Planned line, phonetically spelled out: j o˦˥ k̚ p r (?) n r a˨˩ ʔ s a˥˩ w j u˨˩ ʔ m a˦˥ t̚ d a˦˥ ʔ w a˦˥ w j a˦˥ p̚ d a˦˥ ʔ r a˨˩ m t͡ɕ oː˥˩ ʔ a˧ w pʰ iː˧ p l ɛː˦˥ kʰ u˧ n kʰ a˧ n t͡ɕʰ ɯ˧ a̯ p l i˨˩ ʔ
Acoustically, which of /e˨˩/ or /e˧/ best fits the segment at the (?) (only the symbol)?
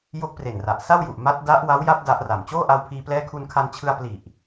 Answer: e˨˩